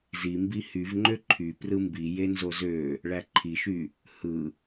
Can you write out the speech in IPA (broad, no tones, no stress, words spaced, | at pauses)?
zimbi hyvŋ͡ǃø ǃʰy prɯmbi jenzozø | ɭæǃʰiʃy | hɯ